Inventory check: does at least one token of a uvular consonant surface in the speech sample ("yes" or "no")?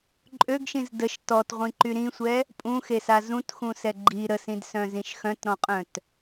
yes